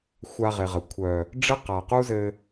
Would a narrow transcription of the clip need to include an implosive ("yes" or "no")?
no